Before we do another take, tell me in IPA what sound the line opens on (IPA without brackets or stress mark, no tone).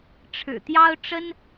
ʈ͡ʂʰ